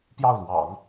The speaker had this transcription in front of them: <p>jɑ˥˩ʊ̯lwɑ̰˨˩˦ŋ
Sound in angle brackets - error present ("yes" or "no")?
no